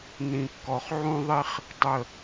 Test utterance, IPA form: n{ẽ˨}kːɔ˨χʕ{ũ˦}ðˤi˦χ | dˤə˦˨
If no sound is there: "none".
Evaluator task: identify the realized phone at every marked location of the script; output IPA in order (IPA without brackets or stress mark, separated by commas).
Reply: ĩ˨, ũ˦